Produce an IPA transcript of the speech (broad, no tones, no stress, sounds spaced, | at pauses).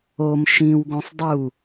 o m ʃ ĩ w ɡ õ sˤ dˤ u